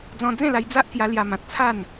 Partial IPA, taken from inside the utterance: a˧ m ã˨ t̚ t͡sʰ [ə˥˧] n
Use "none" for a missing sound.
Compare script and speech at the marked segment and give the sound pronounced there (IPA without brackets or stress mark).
a˥˧